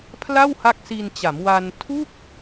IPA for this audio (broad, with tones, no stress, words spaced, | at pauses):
pʰla˥˩wha˦˥k̚si˧nt͡ɕa˩˦m wa˧n tʰu˥˩k̚